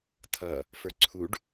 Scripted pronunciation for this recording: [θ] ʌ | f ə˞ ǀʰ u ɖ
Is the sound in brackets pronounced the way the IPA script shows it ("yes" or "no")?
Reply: no